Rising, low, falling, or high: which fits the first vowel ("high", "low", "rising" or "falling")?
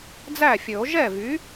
falling